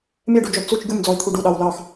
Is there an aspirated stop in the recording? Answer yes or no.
yes